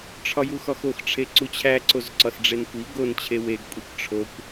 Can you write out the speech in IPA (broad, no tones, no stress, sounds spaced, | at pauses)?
ʈ͡ʂʰ ɒ j u x ɒ x o x ʈ͡ʂʰ e ǀ u t͡ɕʰ æ ǀ o z ǀ ɒ s ɖ͡ʐ e n kʷ i ɡ o n t͡ɕʰ e w e ɡ kʷʼ i kʷ ʈ͡ʂʰ o kʷ